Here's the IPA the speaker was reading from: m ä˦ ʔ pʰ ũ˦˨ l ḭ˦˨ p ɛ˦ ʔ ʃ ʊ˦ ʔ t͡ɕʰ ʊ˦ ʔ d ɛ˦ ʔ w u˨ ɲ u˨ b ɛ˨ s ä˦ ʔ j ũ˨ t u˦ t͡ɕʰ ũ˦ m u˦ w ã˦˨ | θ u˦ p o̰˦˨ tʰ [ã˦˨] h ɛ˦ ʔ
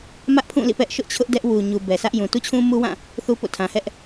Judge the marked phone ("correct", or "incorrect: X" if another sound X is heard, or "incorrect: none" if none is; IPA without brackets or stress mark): incorrect: ã˨